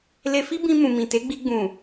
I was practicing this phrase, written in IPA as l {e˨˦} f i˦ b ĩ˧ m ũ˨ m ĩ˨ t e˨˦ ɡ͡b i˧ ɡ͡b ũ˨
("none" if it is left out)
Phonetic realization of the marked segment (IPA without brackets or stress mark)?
e˧